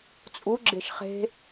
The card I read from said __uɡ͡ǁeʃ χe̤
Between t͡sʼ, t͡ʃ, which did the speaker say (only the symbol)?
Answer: t͡sʼ